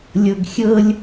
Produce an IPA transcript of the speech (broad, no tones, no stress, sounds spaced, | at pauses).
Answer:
lʲ ɤ ɡ xʲ ɤ lʲ